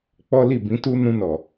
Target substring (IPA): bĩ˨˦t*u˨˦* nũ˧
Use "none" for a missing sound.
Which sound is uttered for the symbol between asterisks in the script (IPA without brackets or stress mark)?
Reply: u˦